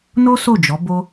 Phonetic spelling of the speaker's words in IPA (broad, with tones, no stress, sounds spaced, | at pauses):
n o˦ s o˦˨ d͡ʒ ɔ˨˦ b o˦